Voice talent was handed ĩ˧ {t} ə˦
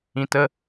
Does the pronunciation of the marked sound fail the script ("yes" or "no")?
no